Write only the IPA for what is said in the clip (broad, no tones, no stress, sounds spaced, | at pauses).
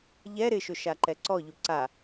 ʎ ɛ ɾ ɪ ʃ ʊ ʃ a ǃ ɛ ǀ ɔ ʎ u ǀ a